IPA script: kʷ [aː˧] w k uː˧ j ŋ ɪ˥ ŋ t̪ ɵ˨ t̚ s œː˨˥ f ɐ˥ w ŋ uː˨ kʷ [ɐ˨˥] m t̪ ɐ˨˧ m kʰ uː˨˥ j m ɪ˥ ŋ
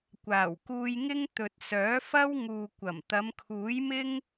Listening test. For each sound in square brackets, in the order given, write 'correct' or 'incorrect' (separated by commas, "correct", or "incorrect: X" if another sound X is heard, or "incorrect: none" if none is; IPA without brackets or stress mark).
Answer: incorrect: aː˨˩, incorrect: ɐ˨˩